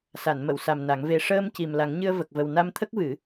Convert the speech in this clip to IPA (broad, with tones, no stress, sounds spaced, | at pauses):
s a˨˩˨ n m ə˨˩˨ w s a˨˩ m n a˨˩˦ ŋ v e˧ ʂ əː˧ m c i˨˩ m l a˨˩˦ ŋ ɲ ɨ˧ ə̯ v ə˨˩ k̚ v ə˨˩ w n a˧ m t̪ʰ ə˦˥ k̚ v ɨ˨˩˦